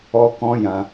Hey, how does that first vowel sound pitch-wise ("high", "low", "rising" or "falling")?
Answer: high